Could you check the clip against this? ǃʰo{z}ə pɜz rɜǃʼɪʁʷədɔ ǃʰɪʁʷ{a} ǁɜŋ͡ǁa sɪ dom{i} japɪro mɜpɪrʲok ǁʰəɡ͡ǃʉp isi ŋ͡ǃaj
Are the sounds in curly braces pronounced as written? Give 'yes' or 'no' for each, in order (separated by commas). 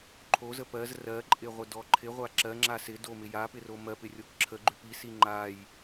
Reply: yes, yes, no